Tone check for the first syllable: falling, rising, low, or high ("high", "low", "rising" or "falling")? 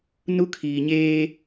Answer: high